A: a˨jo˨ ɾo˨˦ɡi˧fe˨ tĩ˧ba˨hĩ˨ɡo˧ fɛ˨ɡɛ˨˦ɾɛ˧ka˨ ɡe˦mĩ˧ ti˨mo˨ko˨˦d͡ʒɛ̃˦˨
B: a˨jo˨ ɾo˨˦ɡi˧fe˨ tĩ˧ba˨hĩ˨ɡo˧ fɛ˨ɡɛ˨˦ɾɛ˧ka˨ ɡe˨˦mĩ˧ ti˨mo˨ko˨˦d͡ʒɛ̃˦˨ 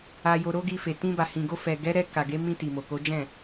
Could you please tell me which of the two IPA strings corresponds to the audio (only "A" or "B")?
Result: B